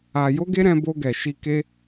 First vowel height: low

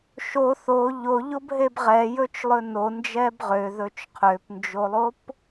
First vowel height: mid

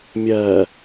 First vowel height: low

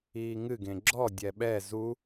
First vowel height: high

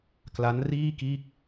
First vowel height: low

